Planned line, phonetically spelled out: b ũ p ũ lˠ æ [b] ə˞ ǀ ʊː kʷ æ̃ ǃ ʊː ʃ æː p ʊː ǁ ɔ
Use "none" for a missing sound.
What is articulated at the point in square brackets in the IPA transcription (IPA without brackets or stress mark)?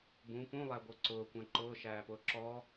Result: ɡʷ